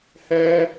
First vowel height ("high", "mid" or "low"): mid